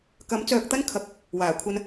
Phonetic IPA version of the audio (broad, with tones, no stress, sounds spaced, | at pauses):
k ɐ˨˥ m t͡s œː˧ k̚ t̪ ɐ˥ n kʰ ɐ˨˥ k̚ | w aː˨˩ kʷʰ ɐ˧ n